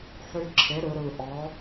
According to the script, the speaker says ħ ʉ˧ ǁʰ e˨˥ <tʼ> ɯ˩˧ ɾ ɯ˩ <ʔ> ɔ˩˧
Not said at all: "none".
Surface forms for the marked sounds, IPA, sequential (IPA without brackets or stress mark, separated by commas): ɾ, ʔ